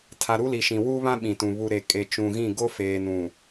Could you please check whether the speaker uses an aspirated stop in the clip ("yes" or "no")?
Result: yes